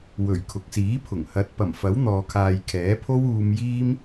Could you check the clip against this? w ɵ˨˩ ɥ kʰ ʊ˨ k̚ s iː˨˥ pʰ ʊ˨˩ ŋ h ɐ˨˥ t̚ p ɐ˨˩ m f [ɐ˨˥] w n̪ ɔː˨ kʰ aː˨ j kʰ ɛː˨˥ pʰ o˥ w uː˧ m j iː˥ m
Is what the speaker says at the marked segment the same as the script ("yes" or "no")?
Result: yes